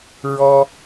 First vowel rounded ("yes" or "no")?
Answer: yes